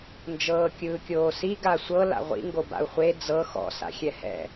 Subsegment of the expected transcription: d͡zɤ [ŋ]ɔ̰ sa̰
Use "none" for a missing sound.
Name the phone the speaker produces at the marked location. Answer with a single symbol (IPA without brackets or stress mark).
x